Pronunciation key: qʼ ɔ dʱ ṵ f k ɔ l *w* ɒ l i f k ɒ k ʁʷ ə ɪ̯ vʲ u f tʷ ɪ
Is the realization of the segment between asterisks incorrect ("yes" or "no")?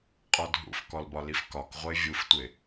yes